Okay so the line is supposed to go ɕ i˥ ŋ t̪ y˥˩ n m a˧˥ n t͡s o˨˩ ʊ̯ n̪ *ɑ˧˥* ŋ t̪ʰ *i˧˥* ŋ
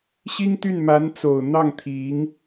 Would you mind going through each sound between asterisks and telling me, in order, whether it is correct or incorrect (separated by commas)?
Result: incorrect, correct